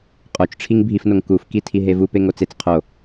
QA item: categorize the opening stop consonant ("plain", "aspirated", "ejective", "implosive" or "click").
ejective